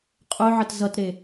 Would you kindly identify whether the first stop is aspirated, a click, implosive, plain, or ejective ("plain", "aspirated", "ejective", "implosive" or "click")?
ejective